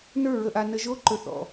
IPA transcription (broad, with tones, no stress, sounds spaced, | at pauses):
n ə˞˦˨ ɹ ə˨ ʔ a˨ n ə˨ ʒ o˧ ǃ ɵ˨ θ ɔ̰˨